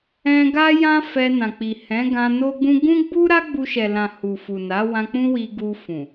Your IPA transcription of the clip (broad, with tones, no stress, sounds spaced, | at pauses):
ɛ̃˧ ɡ a˦ j ã˦ f ɛ˧ n ã˨ k͡p i˨ h ɛ̃˨˦ ɡ ã˧ n o˦ ɡ͡b ũ˦ ɡ ũ˦ ɡ͡b u˦ ɾ a˦ ɡ͡b u˧ ʃ ɛ˨ l ã˨ h u˨ f u˨ n a˨˦ w ã˧ k͡p ũ˦ w i˧ ɡ u˧ f ũ˨